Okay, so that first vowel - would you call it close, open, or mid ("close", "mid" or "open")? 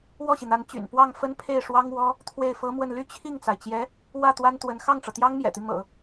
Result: mid